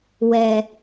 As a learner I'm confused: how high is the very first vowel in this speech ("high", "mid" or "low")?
mid